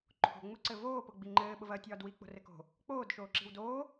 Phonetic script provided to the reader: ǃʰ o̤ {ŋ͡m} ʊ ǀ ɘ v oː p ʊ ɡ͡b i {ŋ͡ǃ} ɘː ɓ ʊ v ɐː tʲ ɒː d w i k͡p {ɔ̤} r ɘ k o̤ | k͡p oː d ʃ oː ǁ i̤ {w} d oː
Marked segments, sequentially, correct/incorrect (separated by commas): correct, correct, incorrect, correct